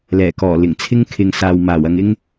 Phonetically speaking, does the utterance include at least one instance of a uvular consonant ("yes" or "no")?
no